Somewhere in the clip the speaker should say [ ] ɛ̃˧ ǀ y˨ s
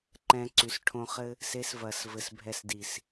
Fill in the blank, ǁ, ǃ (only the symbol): ǃ